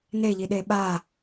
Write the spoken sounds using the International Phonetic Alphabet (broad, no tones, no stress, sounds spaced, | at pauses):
n e ʎ i ɗ e ɓ a